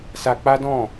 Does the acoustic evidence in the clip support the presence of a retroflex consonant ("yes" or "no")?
no